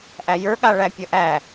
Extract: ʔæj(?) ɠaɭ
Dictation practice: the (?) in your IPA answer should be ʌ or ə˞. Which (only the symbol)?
ə˞